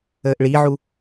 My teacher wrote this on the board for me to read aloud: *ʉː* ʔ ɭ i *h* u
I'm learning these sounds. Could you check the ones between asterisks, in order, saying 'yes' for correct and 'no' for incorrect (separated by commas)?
no, no